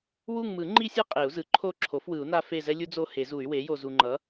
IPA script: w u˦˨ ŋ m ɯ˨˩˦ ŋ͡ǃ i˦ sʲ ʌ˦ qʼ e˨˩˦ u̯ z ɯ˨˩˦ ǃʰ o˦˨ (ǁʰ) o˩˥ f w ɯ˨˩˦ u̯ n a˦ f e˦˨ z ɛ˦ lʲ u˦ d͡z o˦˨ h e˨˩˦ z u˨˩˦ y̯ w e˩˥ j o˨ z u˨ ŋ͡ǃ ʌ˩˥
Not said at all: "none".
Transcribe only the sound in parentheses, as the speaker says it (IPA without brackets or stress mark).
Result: ǁʰ